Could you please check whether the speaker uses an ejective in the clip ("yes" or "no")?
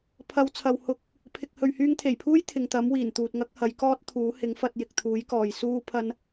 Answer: no